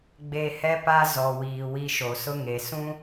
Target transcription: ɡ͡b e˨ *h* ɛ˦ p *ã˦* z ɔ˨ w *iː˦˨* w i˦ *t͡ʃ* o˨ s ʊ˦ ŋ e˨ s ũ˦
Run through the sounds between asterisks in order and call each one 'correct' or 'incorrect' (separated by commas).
correct, incorrect, incorrect, incorrect